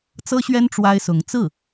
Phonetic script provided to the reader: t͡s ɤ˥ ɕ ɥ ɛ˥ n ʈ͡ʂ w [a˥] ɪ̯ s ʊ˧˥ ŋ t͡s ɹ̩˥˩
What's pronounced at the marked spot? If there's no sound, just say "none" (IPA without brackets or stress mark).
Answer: a˥